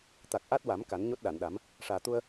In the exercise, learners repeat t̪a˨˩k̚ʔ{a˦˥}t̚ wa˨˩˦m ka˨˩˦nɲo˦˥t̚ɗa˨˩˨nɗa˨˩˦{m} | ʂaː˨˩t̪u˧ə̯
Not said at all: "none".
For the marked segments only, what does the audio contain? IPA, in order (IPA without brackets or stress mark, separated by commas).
a˦˥, m